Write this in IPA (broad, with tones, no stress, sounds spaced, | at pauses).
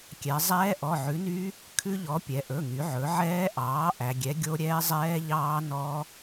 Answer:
kʲ ɛ˩˧ zˤ ɛː˦˥ ʔ ɔ˩˧˩ ʕ ʉ˩˥ n y˦˥ | kʰ ʉ˦˥ ʎ ɔ˩˥ pʲ ɛ˩˧ ʔ ɵ˩˧˩ ŋ y˩˧ ʕ ɵ˩˧ ʕ ɛː˦˥ ʔ ɑː˩˥ ʔ æ˩˧ ɡʲ ɛ˩˥ ɡʲ o˦˥ ɾʲ ɛː˦˥ zˤ ɛː˦˥ ʎ ɑː˦˥ n ɔ˦˥